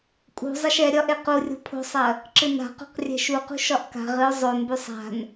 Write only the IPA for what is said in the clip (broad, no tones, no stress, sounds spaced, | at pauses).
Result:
kʼ ṳ zˤ ɐ ʃ ɛ ɾʲ ɒ ʔ e q u rʲ o̤ pʰ o̤ sˤ ɐ | ǁ ɨ n a̤ q o̤ q rʲ ɛ̤ ʃ u q ṳ ʃ ɒ ʔ k a̤ ʁ ɨ ʊ̯ zˤ o n b y sˤ a̤ n